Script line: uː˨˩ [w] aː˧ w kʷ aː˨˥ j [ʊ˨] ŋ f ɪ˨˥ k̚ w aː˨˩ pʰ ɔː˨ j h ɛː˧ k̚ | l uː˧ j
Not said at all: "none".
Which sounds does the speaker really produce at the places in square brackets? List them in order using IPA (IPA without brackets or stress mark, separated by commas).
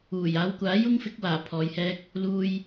j, ʊ˥